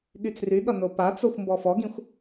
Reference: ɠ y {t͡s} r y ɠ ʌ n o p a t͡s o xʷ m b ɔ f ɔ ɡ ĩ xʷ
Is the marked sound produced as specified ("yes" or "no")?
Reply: yes